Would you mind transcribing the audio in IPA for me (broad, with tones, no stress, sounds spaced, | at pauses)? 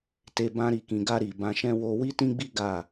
t e˧ b ã˧ ɾ i˨ k ĩ˨ ɡ a˧ ɾ i˨ b ã˧ ʃ ɛ̃˦ w o˦ w i˦ t ĩ˦ ɡ͡b i˦ ɡ a˦˨